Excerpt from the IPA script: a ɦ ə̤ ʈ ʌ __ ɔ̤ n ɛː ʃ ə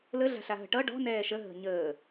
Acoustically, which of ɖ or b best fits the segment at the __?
ɖ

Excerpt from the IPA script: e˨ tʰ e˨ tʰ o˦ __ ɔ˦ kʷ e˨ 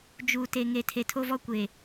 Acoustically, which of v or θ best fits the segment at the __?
v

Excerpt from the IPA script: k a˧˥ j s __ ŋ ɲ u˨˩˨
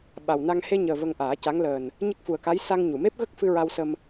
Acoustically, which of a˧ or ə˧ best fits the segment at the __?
a˧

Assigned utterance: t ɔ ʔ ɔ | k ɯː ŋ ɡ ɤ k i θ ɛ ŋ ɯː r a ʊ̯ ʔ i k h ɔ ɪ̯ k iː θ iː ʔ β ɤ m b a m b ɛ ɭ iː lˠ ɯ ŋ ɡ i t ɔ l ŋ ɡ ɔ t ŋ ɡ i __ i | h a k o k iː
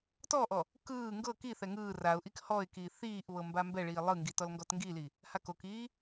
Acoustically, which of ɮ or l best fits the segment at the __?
l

